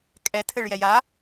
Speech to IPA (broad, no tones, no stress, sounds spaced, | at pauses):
kʼ ɛ tʰ ɘ ɭ j ɛ j a